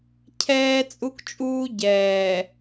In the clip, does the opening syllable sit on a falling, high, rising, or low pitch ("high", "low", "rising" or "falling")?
high